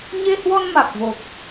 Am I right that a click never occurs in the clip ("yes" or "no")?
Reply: yes